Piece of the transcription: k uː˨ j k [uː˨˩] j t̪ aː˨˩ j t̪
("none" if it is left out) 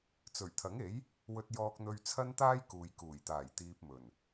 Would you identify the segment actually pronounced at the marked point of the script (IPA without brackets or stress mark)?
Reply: uː˨˩